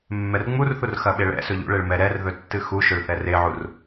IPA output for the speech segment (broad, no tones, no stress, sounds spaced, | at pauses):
mː ɛ r ŋ͡m u r θ u r x ɐ ɓ e ɭ ɛ̰ s ɵ ʎ ṵ ɭ e ɭ m ɛ ɾ ɛ r ð ɵ tː ɨ x u ʃ ɵ ɭ θ ɛ r e ʕ u r